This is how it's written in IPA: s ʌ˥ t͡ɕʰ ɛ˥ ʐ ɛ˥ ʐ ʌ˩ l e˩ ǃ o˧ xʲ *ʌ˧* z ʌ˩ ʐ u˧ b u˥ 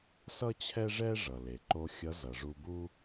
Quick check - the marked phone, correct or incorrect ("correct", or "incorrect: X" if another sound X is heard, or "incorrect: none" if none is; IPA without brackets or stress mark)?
incorrect: ʌ˧˥